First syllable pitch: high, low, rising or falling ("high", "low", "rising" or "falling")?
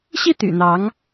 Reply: falling